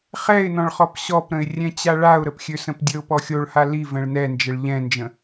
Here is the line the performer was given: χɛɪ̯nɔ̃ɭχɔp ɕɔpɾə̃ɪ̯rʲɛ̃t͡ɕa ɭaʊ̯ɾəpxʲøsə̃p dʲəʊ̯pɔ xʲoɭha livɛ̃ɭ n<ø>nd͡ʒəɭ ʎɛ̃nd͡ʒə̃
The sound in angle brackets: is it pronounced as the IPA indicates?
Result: no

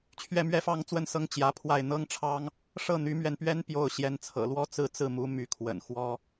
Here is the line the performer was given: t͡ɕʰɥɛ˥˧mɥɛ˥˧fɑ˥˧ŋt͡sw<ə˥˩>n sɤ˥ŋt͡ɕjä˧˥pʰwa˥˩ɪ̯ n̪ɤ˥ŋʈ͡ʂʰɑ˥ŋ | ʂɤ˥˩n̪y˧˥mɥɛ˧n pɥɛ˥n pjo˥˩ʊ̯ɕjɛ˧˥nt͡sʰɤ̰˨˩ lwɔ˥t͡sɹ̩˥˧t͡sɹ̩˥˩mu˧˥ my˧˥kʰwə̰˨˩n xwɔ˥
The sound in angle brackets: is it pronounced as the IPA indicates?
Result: yes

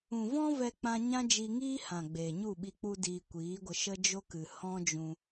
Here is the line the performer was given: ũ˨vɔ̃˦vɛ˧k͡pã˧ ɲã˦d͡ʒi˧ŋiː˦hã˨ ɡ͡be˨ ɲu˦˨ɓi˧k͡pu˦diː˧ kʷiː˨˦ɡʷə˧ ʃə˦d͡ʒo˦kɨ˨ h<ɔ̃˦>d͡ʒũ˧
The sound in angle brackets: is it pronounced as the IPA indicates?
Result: yes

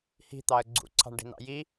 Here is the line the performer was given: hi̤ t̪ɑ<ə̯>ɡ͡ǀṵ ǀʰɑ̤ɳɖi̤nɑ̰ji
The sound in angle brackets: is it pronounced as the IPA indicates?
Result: yes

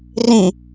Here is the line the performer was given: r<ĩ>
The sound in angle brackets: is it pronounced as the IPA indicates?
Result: yes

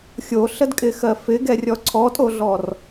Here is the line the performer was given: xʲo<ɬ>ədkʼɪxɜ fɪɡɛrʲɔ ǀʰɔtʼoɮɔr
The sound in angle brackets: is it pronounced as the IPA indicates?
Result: yes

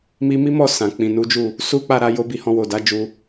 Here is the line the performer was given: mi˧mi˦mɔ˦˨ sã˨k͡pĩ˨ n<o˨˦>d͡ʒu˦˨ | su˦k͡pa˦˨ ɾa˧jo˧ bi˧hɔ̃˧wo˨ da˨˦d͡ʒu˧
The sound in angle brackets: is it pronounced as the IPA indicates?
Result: no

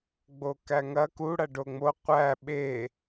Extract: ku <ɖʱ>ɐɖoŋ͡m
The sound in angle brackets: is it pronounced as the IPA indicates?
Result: no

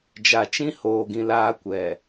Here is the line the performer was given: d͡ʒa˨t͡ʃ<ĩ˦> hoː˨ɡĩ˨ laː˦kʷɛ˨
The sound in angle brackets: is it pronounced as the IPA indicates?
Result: yes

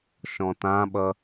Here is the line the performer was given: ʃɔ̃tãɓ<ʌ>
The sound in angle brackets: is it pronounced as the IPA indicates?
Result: yes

